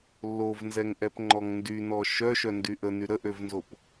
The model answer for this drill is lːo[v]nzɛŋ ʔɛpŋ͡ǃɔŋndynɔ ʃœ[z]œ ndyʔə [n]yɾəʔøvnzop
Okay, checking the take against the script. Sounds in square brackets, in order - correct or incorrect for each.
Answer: correct, incorrect, correct

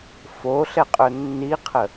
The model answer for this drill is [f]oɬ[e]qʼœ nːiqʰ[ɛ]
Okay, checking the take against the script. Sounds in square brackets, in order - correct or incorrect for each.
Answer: correct, incorrect, incorrect

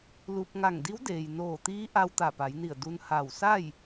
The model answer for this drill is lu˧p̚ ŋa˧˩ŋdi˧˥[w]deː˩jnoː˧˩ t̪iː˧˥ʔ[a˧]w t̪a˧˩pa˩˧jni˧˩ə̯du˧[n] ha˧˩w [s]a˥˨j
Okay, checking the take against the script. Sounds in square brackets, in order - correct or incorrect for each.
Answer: correct, correct, correct, correct

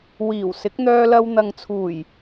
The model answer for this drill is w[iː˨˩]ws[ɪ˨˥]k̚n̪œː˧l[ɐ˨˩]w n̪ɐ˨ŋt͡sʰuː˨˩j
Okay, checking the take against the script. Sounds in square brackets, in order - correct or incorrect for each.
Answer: correct, correct, incorrect

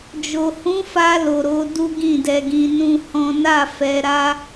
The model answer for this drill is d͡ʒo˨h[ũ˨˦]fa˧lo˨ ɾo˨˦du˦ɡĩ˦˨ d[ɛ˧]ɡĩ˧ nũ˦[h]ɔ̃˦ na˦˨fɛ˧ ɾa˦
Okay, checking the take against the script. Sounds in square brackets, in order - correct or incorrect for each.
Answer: correct, correct, correct

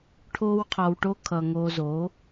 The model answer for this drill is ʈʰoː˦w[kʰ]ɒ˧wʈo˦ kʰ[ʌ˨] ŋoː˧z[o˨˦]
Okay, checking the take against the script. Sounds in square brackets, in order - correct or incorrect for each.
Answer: incorrect, correct, correct

